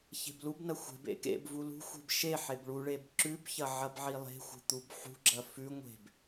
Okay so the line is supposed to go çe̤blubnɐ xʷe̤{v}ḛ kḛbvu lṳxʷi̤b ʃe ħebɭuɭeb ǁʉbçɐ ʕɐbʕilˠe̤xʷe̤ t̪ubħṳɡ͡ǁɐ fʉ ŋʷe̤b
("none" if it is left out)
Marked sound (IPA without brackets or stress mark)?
b